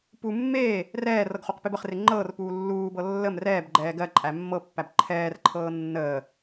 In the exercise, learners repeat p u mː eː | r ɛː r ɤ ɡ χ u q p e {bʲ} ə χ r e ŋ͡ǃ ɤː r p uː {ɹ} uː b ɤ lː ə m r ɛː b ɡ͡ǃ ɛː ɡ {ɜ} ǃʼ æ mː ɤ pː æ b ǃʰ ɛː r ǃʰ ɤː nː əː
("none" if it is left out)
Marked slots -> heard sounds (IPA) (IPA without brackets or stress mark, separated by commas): b, lː, ɜ